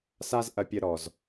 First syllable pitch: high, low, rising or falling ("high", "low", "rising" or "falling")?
high